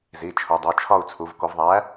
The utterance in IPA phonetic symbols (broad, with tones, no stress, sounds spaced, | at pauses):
z i˩˧˩ t͡ʃʰ o˩˧ dˤ o˩˧˩ t͡ʃʰ ɒ˦˨ u̯ t͡sʰ u˩˧ v k o˧˩˧ v ðˤ æ˨˥